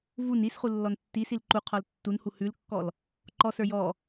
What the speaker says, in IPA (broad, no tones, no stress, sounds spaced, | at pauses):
v u n i s χ u lː ɔ n tː i s i l ǃ u qʰ ɔ l tː u n h u h ʉ l kː ɔ l | ǃ ɔ s ə˞ j ɔ